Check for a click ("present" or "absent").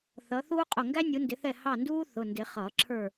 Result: present